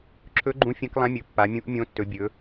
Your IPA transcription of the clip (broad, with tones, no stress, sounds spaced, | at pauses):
ǁʰ ɵ˧˥ ɡ͡ǃ ũ˧˥ fʲ ɐ̃˧˥ k lˠ ã˧˥ mʲ ɵ˩˧ pː a˩˧ mʲ ũ˧˥ ʔ mʲ õ˧˥ tː ɵ˩˧ bʲ ɵ˩˧